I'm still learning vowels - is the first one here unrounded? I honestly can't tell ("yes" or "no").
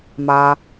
yes